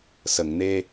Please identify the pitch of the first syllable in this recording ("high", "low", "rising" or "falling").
low